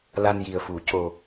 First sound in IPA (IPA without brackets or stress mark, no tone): l